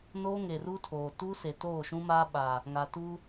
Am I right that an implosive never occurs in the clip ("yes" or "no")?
no